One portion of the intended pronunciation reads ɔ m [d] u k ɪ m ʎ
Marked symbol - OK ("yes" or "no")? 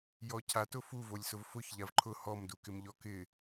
yes